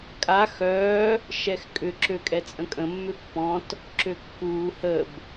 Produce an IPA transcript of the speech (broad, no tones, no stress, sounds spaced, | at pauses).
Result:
kʼ a x œː | ʃ ɛ x kʼ ʏ ǁ ø kʼ ɛ t͡sʼ ə̃ kʼ ə̃ mː ʏ pː ɔ̃ t | ǁ ø kː uː h ə b